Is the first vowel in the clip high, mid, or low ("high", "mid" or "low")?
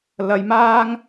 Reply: low